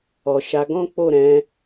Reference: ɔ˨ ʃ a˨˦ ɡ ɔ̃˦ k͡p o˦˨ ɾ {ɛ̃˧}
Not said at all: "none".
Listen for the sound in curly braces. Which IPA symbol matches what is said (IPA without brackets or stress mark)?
ɛ̃˨˦